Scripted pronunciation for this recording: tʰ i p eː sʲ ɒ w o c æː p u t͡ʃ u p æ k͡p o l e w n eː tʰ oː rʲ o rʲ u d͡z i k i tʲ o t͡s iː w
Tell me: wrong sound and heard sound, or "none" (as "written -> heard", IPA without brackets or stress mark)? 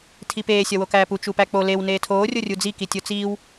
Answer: c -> k